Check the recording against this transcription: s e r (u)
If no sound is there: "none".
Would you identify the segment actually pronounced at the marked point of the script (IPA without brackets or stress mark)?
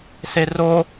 o